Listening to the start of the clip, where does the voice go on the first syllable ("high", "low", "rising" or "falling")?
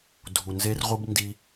low